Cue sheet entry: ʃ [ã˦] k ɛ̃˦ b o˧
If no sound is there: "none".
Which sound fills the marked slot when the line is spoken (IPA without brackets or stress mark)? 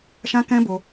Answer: ã˦